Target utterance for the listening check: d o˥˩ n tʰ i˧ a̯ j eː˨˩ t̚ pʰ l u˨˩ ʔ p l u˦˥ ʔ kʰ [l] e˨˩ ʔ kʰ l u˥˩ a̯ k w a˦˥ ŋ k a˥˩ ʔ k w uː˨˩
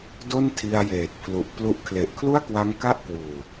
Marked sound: correct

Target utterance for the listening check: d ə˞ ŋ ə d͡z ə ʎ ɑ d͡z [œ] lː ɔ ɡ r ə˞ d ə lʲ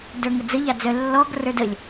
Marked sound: correct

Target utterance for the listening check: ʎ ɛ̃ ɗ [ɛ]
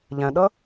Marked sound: incorrect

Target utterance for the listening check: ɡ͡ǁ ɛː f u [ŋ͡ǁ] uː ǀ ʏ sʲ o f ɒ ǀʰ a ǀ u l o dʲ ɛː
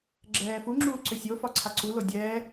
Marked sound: correct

